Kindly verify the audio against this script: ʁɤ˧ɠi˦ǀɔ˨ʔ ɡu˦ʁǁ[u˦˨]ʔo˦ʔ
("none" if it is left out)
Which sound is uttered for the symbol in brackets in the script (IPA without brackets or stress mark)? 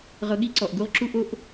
u˦